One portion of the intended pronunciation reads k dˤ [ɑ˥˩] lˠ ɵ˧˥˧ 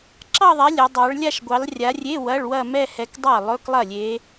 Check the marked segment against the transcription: correct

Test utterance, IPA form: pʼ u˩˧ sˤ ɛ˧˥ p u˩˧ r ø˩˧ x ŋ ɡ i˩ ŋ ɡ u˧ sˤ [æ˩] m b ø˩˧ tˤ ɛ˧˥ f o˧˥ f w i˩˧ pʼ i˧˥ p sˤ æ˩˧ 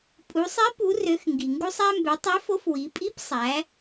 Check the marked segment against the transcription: incorrect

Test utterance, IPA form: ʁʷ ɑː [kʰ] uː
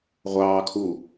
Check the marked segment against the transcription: correct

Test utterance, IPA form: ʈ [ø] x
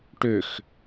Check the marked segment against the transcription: correct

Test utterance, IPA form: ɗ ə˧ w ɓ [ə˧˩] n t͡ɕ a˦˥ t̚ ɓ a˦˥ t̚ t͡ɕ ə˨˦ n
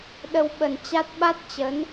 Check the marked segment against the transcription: incorrect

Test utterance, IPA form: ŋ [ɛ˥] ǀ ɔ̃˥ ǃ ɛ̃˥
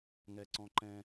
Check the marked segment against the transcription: correct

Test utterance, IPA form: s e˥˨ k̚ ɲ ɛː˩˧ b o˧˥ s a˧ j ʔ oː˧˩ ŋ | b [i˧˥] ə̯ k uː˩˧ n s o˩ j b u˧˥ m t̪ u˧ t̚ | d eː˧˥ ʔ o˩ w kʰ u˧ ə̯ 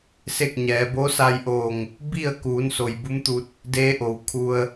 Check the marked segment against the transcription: incorrect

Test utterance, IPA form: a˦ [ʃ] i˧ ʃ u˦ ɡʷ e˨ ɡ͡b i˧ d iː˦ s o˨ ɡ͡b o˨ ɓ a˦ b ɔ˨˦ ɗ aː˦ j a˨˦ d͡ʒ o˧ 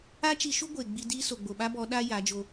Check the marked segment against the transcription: incorrect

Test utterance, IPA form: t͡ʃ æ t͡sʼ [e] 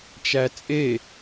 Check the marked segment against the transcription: correct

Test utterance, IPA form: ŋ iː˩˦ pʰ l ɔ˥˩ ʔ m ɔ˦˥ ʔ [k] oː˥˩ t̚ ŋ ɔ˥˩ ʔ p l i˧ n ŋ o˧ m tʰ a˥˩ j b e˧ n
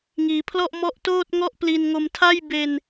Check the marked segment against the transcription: incorrect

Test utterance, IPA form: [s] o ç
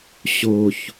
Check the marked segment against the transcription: incorrect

